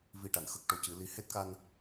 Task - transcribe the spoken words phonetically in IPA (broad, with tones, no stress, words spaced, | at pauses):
vi˨˩ ʈa˨˩˨nxə˦˥k̚ʈo˨˩cɨ˨˩˦ li˨˩˦ he˦˥t̚ka˧n